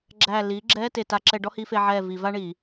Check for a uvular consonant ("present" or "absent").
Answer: absent